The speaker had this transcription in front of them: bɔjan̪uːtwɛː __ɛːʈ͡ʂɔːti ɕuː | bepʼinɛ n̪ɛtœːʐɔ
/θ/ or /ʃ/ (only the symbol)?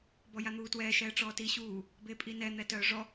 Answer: ʃ